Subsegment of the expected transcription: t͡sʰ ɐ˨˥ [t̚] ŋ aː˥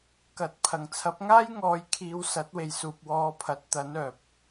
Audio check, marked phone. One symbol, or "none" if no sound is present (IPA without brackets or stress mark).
p̚